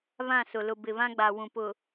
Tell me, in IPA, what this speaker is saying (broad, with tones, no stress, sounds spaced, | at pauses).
β ã˦˨ s ʊ˨ l ʊ˨ b ɪ˨ β ã˦ ɡ͡b a˨ w ũ˨ p ʊ˨